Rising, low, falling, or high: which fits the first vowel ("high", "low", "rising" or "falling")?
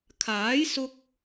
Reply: rising